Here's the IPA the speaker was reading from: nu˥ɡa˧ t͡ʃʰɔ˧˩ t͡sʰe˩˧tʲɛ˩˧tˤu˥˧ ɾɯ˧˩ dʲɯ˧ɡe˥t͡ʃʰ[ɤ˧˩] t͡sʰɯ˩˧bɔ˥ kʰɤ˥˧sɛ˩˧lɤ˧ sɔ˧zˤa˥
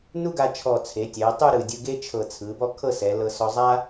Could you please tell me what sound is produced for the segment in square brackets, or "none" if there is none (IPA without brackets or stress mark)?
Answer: ɤ˧˩